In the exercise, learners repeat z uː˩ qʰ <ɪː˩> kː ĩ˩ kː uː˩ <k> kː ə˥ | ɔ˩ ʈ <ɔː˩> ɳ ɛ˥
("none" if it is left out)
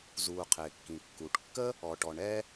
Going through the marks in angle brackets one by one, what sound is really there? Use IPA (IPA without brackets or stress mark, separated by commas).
ɪː˩, ʈ, ɔ˩